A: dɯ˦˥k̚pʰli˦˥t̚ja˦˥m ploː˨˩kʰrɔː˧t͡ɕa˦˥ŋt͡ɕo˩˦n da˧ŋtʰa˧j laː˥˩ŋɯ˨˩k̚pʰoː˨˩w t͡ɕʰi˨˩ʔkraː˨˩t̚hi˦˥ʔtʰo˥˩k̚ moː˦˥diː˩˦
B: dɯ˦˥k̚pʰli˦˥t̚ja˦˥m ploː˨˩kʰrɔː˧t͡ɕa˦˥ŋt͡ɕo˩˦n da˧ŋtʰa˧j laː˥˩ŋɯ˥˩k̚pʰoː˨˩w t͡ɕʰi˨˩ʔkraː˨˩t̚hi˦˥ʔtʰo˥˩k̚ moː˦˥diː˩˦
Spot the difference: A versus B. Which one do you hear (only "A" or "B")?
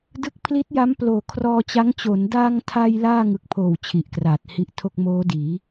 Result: A